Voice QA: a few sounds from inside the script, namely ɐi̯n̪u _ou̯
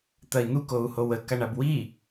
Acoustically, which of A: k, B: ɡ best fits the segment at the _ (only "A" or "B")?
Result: A